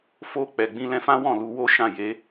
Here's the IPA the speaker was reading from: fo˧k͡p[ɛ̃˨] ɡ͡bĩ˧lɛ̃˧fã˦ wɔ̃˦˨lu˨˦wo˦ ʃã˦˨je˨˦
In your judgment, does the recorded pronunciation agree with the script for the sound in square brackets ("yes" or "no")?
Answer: no